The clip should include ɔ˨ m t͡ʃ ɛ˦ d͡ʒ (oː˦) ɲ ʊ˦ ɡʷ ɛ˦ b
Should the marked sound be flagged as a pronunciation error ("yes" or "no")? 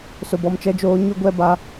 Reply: no